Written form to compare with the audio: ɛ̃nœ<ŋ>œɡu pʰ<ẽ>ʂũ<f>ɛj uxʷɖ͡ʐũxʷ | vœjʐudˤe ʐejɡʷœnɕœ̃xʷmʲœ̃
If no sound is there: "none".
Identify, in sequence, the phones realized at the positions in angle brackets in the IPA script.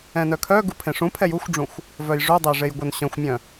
kʰ, ẽ, pʰ

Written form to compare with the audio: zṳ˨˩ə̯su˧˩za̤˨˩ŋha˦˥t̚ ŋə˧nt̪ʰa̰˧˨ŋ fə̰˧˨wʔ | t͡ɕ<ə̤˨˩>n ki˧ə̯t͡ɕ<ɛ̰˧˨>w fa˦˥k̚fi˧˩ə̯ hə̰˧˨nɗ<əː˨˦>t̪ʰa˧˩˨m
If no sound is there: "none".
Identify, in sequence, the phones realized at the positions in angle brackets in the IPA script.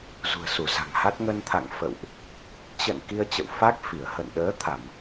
ə̰˧˨, ə̰˧˨, əː˨˦

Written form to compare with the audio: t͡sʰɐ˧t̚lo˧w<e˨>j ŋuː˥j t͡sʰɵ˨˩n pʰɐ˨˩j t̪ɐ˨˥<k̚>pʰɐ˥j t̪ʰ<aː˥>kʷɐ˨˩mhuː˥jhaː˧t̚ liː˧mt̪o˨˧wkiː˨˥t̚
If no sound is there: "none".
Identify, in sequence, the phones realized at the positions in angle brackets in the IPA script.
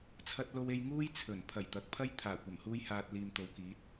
e˧, k̚, aː˨˩

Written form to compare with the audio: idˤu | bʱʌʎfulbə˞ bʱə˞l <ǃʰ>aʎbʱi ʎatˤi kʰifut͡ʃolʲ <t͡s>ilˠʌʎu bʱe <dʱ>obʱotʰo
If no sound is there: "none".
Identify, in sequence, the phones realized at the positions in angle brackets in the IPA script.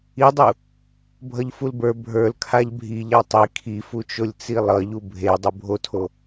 kʰ, t͡s, dˤ

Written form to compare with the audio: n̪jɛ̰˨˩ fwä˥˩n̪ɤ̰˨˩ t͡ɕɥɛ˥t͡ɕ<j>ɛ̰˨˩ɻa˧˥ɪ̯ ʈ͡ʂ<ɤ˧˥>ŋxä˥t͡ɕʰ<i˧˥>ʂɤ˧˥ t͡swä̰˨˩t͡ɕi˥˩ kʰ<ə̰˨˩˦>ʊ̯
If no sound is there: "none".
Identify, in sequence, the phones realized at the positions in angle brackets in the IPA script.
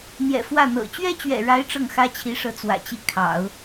ɥ, ɤ˥˩, i˧˥, ɑ̰˨˩˦

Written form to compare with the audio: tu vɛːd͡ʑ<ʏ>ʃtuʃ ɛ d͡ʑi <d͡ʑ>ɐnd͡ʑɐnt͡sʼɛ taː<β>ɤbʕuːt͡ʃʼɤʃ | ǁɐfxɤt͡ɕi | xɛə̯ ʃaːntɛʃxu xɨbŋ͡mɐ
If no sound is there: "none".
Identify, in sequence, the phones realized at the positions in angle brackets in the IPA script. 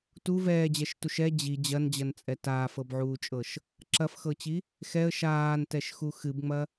ɛ, d͡ʑ, f

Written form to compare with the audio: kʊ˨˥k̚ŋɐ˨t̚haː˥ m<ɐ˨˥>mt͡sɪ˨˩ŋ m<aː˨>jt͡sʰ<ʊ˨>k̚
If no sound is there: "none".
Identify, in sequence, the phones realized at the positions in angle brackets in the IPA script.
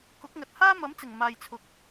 ɐ˨˥, aː˨, ʊ˨

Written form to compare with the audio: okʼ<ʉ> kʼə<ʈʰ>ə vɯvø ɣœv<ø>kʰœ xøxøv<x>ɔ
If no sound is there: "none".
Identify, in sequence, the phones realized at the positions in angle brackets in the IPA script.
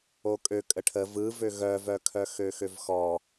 ø, ʈʰ, œ, x

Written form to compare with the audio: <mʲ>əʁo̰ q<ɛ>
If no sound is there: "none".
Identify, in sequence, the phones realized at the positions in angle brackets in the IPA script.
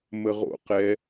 m, ɛ

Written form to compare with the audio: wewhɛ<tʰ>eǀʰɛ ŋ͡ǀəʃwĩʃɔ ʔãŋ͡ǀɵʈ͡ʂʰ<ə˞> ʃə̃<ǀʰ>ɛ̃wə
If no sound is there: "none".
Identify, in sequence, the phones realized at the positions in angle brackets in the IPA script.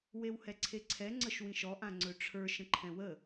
ǀʰ, ə˞, ǃʰ

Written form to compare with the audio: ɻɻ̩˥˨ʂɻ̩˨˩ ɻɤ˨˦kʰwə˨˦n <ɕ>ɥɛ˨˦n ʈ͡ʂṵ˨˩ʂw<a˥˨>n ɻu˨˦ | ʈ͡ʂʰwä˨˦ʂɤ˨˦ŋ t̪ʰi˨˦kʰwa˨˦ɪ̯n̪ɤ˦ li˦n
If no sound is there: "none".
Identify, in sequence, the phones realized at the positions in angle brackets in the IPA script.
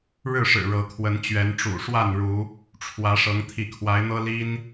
t͡ɕ, a˥˨

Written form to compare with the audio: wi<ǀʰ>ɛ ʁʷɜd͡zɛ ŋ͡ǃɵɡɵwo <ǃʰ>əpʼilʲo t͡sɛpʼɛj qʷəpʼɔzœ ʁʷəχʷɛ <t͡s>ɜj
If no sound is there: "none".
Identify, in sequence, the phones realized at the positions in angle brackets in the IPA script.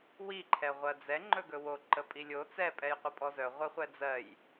ǃʰ, ǃ, d͡z

